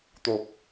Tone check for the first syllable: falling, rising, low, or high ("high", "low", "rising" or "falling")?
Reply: low